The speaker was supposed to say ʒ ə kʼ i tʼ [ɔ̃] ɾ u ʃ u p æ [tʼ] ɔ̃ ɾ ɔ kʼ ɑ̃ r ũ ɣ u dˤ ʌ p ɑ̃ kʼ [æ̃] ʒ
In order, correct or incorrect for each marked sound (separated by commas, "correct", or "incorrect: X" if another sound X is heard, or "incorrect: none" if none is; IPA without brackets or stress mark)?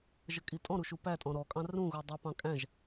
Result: correct, correct, correct